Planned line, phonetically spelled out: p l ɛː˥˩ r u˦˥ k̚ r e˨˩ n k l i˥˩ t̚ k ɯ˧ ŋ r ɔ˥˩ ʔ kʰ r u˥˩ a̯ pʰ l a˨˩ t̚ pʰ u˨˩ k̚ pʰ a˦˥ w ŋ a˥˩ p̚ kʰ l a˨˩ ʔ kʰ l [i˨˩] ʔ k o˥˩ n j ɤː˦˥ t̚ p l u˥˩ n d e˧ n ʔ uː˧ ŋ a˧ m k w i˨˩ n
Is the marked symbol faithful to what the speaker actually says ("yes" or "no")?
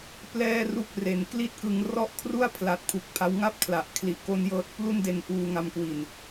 yes